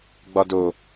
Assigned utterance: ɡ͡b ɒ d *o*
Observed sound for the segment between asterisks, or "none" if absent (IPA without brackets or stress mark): o